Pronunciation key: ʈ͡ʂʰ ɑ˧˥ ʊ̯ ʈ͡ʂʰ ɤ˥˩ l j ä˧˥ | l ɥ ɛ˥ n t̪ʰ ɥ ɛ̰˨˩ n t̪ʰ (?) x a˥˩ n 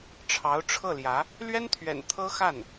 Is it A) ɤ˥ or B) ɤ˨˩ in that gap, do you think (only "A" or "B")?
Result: A